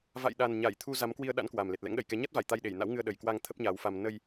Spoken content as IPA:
v a̰˧˨ j ɗ a˨˩ n ɲ a˧˩ j t̪ʰ u˧ z a˨˦ m k w i˧ ə̯ ɗ a̰˧˥ n k w a˨˩ m l e˨˩ t̚ l ɛ̰˧˥ ŋ ɗ ə˧˩ j k ɛ˨˦ ɲ a˦˥ t̚ v a˧˩ j t̪ a˧ j ɗ e˧˩ j n a̰˧˥ w ŋ ɨ˧ ə̯ ɗ ə˨˩ j k w a˧ ŋ t̪ʰ ə˦˥ p̚ ɲ aː˨˦ w f a˧ m n ə˧ j

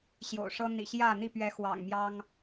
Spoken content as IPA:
ɕ j o̰˨˩ ʊ̯ ʂ ɤ˦ n̪ ḭ˨˩ ɕ j ä˥˨ n̪ i˥˨ p ɥ ɛ˨˦ x w ɑ̰˨˩ ŋ m j ɑ˦ ŋ

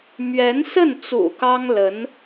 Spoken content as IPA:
m ɥ ɛ˧˥ n s ə˥˩ n t͡s ṵ˨˩ k ɑ˥ ŋ l ə˧˥ n

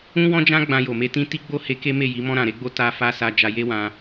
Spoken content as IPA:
ũ˦ w ɔ̃˦ d͡ʒ ã˦ ɡ͡b ã˧ j o˨ m e˧ t ĩ˦ t i˦ ɡ͡b o˦ h e˧ k e˦ m e˦˨ j i˨˦ m ɔ̃˧ ɾ ã˨ ɾ e˨˦ ɡ͡b o˧ t a˧ f a˧ s a˦ d͡ʒ a˧ j e˦ w ã˧

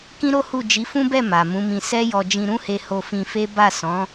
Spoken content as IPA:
k ĩ˦ ɾ o˦ h u˦˨ d͡ʒ i˨˦ f ũ˦ b ɛ˦˨ m a˨ m ũ˨˦ m ĩ˧ s ɛ˦ j ɔ˧ d͡ʒ ĩ˧ ɾ ũ˦ h e˧ h o˧ f ĩ˧ f e˦ b a˦˨ s ɔ̃˨˦

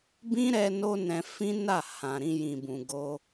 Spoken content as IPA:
b ĩ˦ ɾ ɛ˧ n o˦ n ɛ̃˧ f ĩ˦ n a˦˨ h ã˨ ɾ ĩ˧ j ĩ˨ b ũ˨ ɡ o˧

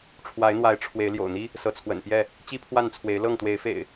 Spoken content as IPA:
ʈ͡ʂʰ w a˨˦ ɪ̯ n̪ w a˨˦ ɪ̯ ʈ͡ʂʰ w e˨˦ ɪ̯ l j o̰˨˩ ʊ̯ n̪ i˦ | s ɤ˨˦ t͡sʰ w ə̰˨˩ n p j ɛ˥˨ | t͡ɕ i˦ pʰ w a˥˨ n t͡sʰ w e˨˦ ɪ̯ l ɤ˥˨ ŋ t̪ w e˨˦ ɪ̯ f ḛ˨˩ ɪ̯

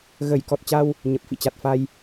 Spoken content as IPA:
ɣ ə˧˩ j k ɔ˨˩ t̚ t͡ɕ a˧ w | ɲ ə˨˩ p̚ f ḭ˧˨ t͡ɕ a˨˩ t̚ f a˧ j

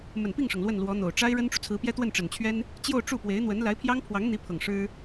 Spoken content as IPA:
m ə˨˩ n p i˥˩ ŋ ʂ ɤ˩ ŋ l w ə˥˩ n l w ɔ˧˥ n̪ o˨˩ ʊ̯ ʈ͡ʂ a˥ ɪ̯ ɻ ə˥ n ʈ͡ʂ u˨ t͡sʰ ɹ̩˧˥ p j ɛ˥ t̪ w ə˥˩ n ʈ͡ʂ ə˨˩ n t͡ɕʰ ɥ ɛ˥ n | t͡ɕ j o˥˧ ʊ̯ ʈ͡ʂ u˥˩ p w e˧˥ ɪ̯ n̪ w ə˧˥ n l a˧˥ ɪ̯ pʰ j ɑ˥ ŋ pʰ w ɑ˧˥ ŋ n̪ i˧˥ pʰ ɤ˨˩ ŋ ʂ ɻ̩˥

